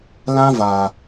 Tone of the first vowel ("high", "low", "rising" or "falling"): high